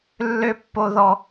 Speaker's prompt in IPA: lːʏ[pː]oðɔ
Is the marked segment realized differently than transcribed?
no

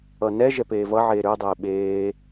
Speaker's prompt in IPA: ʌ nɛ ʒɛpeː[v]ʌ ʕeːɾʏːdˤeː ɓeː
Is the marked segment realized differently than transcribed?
no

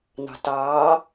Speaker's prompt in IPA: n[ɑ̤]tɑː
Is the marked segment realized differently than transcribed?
no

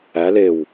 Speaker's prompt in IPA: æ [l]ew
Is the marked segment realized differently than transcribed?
no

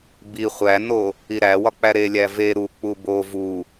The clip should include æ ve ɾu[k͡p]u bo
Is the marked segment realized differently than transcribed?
no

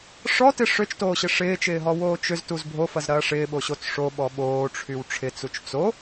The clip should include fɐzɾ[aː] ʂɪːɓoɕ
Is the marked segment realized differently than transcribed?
yes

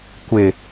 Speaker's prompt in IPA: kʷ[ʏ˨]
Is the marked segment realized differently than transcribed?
yes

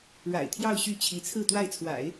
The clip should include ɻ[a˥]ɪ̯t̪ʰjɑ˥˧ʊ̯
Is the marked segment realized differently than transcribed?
yes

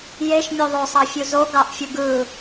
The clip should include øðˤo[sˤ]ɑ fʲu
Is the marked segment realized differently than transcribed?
no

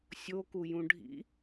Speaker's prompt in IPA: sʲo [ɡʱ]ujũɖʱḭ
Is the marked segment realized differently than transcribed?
yes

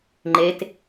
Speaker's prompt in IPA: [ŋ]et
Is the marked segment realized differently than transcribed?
yes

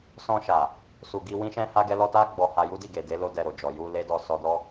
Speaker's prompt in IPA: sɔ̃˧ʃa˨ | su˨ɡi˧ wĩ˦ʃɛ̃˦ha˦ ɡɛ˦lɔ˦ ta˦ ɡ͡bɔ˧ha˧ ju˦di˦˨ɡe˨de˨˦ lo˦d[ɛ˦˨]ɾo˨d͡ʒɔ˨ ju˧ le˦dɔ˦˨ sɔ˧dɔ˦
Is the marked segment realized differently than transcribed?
yes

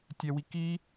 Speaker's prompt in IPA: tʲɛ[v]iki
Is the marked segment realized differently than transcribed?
yes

